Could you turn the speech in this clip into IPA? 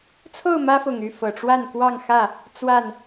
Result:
t͡sʰo˥˨ʊ̯mä˦fʊ˨˩ŋy˥˨ fɤ˨˩ʈ͡ʂwa˥˨nkwɑ˥˨ŋxä˥˨ | t͡swa˥˨n

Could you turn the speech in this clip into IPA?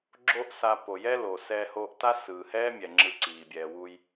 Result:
ɡ͡ǁo˦ʔsa˧ po˨jɛ˦lo˨ sɛː˧hoː˧ʔta˦ sɯː˨hɛː˦mʲɛ˨ ŋ͡ǁɯ˧ǀiː˨ bʲɛː˨wu˧j

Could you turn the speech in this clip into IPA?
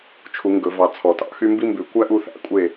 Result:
t͡ʃʰu˨˩˦ŋɡɵ˨˩˦vɑ˨ t͡sʰɔ˨˩˦tɑ̰˨˩˦xy˥ mbi˥mbʉ˨˩˦ kʷæ˥ʔu˥˨θæ̰˥ kʷʼe˥˨

